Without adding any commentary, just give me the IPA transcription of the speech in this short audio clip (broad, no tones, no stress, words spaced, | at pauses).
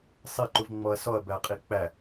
sˤiǃuv ŋ͡mɔɐ̯sɔɐ̯bæqʼi k͡pæ